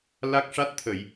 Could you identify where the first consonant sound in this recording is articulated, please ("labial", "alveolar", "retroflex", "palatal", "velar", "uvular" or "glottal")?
alveolar